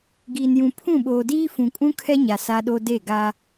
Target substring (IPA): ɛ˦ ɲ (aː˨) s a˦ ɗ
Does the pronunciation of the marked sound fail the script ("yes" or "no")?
yes